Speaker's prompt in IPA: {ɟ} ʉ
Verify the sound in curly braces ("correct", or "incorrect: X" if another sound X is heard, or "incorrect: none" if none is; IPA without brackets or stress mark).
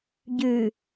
correct